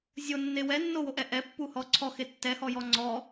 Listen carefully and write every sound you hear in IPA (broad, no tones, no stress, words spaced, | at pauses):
zʲonːe wɛnːowoʔɛ ʔɛpːuhɔ ǀʰɔxe tːɛhɔjɔ ŋ͡ǀɔ